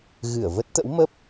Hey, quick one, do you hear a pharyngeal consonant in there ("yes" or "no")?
no